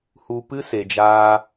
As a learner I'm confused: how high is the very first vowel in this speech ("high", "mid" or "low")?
high